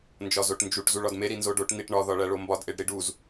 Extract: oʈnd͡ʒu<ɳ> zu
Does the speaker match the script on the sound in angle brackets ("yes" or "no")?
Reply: no